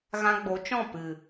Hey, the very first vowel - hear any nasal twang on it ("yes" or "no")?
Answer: yes